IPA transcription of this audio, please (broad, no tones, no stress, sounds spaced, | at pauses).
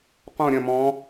q õ ɾʲ ɐ̃ m ɔ̃